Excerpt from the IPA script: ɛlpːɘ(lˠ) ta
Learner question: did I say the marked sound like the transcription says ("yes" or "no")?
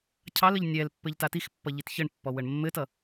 no